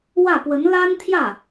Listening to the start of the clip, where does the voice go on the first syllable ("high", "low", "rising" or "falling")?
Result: falling